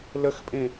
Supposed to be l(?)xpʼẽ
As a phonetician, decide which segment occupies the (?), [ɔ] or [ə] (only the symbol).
ə